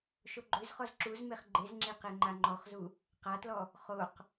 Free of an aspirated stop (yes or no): yes